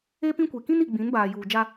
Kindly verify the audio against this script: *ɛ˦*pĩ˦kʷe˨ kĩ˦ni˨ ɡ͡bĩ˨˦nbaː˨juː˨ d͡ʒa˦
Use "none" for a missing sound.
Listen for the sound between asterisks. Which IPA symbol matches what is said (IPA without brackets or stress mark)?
e˦